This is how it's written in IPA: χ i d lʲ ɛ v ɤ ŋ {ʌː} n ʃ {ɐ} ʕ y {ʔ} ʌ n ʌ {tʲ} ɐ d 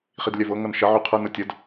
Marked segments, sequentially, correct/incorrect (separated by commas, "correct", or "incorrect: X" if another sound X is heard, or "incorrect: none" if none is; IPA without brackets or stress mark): incorrect: ʌ, correct, incorrect: qʰ, correct